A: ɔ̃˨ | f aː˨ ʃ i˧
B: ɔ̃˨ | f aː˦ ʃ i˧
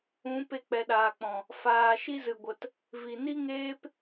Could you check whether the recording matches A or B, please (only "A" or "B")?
A